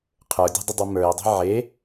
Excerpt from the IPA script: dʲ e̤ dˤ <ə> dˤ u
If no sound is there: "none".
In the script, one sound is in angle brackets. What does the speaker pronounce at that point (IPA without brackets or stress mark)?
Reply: ə